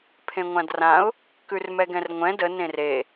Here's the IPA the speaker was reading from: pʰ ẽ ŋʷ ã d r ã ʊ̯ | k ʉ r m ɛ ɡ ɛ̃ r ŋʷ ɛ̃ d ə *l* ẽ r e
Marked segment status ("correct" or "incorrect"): incorrect